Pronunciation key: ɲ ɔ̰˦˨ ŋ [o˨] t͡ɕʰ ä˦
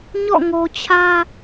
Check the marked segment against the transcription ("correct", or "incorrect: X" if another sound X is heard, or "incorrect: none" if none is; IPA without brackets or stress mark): correct